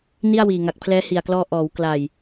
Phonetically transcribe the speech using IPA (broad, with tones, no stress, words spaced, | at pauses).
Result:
ni˥˩a̯wiː˨˩ ŋa˨˩k̚pʰlɛː˦˥hi˨˩a̯klɔː˧ ʔɔː˩˦w kla˨˩j